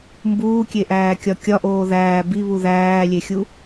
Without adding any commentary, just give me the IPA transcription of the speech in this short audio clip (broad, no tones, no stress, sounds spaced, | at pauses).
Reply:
m b uː kʲ e ʔ æː kʲ ɒ kʲ ɒ ʔ oː ð æː b i β u ð æː lʲ e xʲ u